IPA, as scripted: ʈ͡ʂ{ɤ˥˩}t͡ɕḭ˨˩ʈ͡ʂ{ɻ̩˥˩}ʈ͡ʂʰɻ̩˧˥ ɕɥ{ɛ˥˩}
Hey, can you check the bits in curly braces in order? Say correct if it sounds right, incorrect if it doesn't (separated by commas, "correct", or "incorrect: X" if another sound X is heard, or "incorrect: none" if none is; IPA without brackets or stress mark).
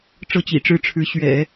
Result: correct, correct, incorrect: ɛ̰˨˩˦